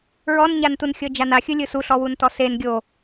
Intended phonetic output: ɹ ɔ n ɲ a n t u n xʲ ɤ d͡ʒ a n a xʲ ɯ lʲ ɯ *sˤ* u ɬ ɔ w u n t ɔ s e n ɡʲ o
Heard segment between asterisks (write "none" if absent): s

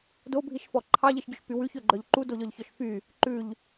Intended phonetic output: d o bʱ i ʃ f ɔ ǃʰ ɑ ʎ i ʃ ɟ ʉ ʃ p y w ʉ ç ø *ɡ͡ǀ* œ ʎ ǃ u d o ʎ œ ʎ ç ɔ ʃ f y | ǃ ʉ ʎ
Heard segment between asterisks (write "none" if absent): ɡ͡ǃ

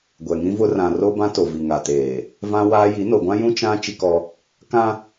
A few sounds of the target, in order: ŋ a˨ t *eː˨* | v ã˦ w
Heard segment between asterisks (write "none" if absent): eː˨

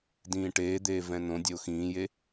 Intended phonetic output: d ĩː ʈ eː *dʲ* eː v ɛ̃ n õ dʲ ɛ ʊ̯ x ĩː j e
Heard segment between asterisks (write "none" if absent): d̪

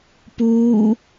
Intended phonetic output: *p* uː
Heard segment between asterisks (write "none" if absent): p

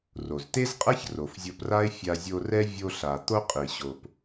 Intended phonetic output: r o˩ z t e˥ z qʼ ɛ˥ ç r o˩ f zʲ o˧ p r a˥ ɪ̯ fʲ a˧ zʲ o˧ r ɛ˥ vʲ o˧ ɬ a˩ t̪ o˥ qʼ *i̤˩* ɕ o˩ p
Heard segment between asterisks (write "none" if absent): i˩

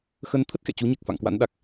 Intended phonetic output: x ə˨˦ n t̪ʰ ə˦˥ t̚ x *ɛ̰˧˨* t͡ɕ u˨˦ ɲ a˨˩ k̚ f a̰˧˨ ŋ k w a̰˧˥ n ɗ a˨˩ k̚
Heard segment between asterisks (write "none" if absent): ɛ̰˧˨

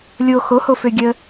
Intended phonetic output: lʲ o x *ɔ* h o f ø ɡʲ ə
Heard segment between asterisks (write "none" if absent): o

